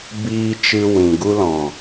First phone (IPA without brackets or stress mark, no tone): b